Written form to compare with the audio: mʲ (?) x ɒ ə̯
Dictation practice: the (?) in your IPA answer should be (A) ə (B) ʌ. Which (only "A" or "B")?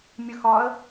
A